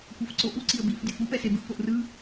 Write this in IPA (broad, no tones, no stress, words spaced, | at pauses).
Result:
kʷafǀoʔu ǀiə̯bif dʲofupɛse bɯʔpoʔrɯ